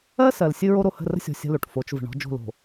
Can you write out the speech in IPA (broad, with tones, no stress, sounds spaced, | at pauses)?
ɜ˦ s ɜ˨ l sʲ ɨ˦ ɹ o˦ ɾ o˨ h ə̤˦˨ r ə̤˦ sʲ ɔ̤˨ sʲ ə̤˦ l o˨ ʈ f o˨˦ t͡ʃ v ə̤˨ ɳ ɔ̤˦ d͡ʒ o̤˦˨ l o̤˨